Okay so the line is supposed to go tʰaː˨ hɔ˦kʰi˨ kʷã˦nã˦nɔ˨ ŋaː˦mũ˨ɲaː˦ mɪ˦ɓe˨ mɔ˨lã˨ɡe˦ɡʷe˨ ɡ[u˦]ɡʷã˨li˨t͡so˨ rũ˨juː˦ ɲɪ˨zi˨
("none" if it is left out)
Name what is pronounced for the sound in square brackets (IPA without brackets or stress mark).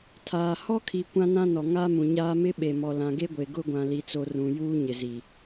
ʊ˦